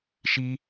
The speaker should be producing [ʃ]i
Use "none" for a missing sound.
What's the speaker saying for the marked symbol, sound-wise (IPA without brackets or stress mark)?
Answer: ʃ